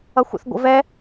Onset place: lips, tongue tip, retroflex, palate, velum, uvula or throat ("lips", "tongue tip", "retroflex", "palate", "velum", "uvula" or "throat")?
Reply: velum